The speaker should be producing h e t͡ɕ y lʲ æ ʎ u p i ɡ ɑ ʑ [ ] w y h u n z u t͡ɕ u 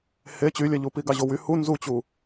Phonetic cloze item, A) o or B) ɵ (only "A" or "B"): A